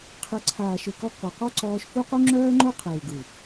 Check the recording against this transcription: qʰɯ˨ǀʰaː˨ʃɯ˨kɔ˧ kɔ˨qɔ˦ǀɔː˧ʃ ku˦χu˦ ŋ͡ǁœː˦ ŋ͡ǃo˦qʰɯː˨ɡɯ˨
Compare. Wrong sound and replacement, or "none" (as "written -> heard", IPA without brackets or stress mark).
χ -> q